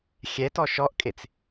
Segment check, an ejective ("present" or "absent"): present